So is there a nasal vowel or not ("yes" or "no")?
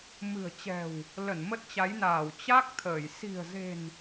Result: no